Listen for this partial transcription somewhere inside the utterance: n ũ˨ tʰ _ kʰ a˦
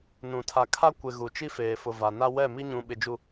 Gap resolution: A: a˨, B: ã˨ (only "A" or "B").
A